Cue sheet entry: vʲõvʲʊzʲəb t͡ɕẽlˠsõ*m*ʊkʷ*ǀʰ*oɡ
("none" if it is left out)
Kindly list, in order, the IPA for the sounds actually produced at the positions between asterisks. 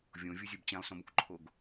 m, ǃʰ

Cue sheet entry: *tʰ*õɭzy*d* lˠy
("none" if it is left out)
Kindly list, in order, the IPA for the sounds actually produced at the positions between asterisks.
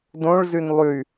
d, n

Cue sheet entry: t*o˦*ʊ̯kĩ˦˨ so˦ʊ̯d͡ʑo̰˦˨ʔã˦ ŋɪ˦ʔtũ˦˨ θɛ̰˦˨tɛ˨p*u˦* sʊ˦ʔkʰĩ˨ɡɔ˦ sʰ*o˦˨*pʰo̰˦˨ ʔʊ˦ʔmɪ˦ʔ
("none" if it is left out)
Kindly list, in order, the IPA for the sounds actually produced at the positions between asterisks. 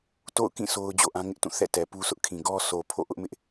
o̰˦˨, u˦, o˨

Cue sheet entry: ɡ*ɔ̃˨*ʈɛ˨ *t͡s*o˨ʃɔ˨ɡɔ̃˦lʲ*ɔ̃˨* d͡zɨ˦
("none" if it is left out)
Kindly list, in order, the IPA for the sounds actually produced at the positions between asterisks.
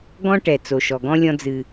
ɔ̃˦, t͡s, ɔ̃˦

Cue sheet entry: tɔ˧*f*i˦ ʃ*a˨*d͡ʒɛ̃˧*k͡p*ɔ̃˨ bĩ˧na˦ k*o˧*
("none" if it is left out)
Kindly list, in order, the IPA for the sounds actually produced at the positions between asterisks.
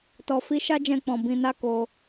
f, a˦, k͡p, o˧

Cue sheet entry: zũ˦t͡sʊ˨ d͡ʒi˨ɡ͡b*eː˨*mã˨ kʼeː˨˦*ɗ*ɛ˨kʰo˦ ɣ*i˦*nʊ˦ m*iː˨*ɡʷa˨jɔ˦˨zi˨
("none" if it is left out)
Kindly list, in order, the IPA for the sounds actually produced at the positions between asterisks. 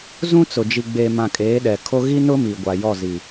eː˨, ɗ, i˦, i˨

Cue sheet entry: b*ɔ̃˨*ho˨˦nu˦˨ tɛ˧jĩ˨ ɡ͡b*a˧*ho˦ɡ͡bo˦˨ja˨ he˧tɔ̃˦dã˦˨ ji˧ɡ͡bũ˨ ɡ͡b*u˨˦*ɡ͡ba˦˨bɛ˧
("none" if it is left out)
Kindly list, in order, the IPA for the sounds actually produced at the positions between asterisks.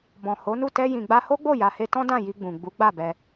ɔ̃˨, a˧, u˨˦

